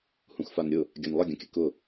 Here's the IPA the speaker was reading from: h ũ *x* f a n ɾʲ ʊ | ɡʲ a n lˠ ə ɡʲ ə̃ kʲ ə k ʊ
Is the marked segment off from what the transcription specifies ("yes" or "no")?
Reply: no